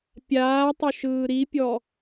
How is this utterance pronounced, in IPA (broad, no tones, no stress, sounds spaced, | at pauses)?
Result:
pʲ aː tˤ ʏ ʃ ɯː ɾ i pʲ ɔ